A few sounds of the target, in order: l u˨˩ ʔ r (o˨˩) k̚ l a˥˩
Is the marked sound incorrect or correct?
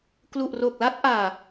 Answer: correct